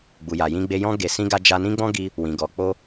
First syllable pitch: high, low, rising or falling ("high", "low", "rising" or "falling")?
low